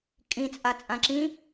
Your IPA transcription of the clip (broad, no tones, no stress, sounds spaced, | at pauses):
kʼ ĩ t͡sʼ a t͡sʼ ã ǁ ĩ